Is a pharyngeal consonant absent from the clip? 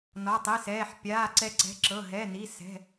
no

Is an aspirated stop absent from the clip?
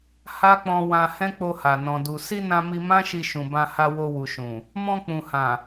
yes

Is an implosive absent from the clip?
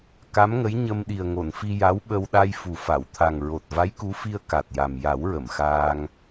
no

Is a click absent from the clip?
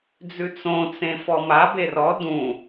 yes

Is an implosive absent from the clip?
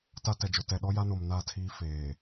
no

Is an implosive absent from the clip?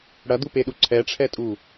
no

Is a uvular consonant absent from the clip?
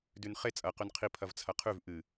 no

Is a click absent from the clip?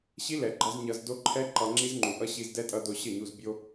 no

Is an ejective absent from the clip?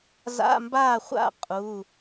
no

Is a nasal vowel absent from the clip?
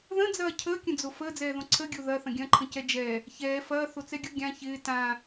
no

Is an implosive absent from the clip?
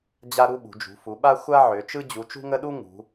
no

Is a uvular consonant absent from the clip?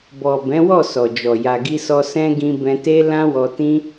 yes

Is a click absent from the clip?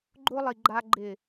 no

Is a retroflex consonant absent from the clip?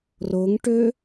no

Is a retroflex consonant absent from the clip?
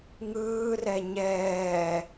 yes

